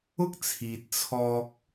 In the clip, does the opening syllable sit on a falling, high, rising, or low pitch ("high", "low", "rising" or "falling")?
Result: high